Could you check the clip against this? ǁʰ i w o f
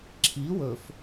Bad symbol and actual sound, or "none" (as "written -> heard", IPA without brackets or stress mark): o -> ɵ